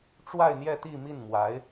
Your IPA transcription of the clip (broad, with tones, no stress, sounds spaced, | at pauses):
ʈ͡ʂ w a˥˧ ɪ̯ n̪ j ɛ˥˧ t̪ i˥˧ m i˥˩ n m w a˧˥ ɪ̯